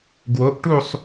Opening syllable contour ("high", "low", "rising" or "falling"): rising